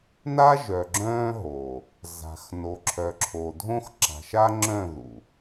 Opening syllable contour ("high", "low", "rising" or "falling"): high